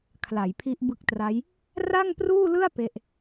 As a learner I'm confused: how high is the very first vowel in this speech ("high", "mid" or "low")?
low